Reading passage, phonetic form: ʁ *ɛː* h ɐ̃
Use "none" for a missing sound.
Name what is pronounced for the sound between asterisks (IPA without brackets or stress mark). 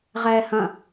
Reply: ɛː